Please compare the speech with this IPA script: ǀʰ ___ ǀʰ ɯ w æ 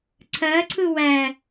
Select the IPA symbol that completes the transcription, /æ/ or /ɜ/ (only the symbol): ɜ